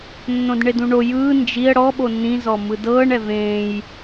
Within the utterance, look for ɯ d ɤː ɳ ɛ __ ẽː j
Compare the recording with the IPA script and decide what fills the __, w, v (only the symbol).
v